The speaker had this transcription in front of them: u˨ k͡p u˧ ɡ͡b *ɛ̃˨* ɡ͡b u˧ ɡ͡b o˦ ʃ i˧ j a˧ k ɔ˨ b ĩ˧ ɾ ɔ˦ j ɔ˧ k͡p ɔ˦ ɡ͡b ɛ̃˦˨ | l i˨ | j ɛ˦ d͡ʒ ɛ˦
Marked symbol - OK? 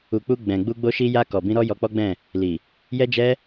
yes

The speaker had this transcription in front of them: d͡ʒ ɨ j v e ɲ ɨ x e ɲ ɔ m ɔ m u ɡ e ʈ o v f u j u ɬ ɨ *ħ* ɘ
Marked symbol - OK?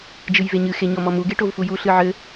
no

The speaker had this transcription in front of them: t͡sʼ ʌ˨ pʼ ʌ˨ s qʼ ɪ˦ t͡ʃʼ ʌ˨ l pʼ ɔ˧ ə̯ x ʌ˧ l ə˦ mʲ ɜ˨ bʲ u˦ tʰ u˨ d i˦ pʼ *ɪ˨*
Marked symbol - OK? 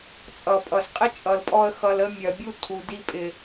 yes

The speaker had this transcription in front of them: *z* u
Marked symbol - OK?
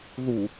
no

